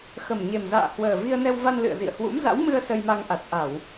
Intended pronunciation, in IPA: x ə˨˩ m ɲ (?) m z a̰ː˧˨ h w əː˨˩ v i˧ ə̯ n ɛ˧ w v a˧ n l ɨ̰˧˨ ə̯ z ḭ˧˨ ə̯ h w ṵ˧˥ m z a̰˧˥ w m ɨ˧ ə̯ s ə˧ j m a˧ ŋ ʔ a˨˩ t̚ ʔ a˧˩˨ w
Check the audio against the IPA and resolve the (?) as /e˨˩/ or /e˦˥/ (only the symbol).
e˨˩